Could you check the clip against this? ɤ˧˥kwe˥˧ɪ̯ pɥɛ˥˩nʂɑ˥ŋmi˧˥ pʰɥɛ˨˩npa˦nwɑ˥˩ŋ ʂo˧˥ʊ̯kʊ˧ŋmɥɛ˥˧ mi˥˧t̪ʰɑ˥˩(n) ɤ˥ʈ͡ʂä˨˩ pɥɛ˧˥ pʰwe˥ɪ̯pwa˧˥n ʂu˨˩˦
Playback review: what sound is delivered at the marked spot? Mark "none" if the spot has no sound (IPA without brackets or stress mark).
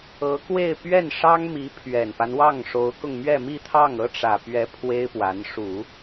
ŋ